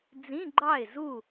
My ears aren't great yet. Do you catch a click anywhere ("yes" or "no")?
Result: yes